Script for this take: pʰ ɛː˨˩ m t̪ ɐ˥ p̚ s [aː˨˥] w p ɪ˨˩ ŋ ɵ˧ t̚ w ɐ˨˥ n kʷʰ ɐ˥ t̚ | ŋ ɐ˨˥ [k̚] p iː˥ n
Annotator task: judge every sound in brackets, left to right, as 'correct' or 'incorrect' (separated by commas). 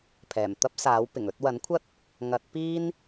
correct, incorrect